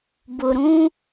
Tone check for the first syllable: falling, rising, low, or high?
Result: low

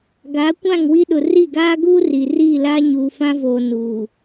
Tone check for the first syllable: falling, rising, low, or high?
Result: rising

